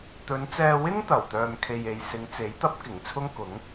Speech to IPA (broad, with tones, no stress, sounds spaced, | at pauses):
t̪ ɵ˨˧ n t͡s ɛː˧ w ɪ˥ ŋ t̪ ɐ˨˩ w t̪ œː˨ m kʰ e˨ j e˨ j s ɪ˨˧ ŋ t͡s e˨˥ j t̪ ɐ˥ p̚ k ɪ˨˩ ŋ t͡sʰ ʊ˥ ŋ k ʊ˨˥ ŋ